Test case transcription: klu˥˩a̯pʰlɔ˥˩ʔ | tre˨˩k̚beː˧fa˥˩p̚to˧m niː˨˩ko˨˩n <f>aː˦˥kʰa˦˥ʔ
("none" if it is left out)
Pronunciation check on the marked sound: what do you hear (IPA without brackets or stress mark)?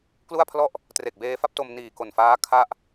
f